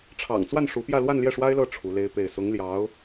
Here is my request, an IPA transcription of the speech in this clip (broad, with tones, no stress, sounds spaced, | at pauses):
ʈ͡ʂʰ ɑ̰˨˩ ŋ t͡s w a˥˩ n ʂ u˧˥ p j ä˥˧ l w a˥˧ n l j ɛ˥˩ ʂ w a˥ ɪ̯ l ɤ˥˩ ʈ͡ʂʰ u˧˥ l e˥ ɪ̯ p e˥˩ ɪ̯ s ʊ˧˥ ŋ l j ɑ˧˥ ʊ̯